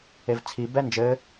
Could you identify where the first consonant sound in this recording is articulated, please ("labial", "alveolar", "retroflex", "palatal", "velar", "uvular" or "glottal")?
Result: labial